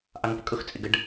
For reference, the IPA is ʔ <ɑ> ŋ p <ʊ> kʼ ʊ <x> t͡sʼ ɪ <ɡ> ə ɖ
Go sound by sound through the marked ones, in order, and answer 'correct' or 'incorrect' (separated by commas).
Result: correct, incorrect, correct, correct